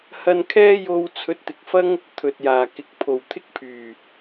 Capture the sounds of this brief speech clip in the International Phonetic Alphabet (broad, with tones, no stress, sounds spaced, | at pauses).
h ɐ˧ n kʰ ɛː˥ j o˧ w t͡sʰ ɵ˨˥ t̚ t̪ ɪ˨ k̚ f ɐ˥ ŋ | t̪ʰ ɵ˨ t̚ j aː˨˩ k ɪ˨˥ k̚ pʰ o˨˩ w t̪ʰ ɪ˥ k̚ pʰ yː˨˩